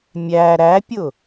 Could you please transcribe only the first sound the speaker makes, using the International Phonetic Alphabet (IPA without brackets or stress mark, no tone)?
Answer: mʲ